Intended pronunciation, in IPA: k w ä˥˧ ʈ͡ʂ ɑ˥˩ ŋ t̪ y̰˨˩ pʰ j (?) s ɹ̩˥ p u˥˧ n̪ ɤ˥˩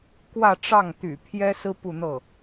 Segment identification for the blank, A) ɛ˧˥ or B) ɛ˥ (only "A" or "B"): B